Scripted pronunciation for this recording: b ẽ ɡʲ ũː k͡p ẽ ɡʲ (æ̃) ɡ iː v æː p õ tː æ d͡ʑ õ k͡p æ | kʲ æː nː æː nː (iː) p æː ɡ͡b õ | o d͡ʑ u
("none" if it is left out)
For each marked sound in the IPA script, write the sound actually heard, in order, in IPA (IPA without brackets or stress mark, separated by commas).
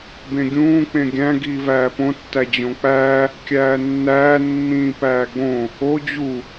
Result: æ̃, ĩː